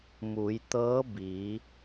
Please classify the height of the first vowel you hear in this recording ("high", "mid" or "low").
high